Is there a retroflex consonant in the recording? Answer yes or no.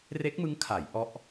no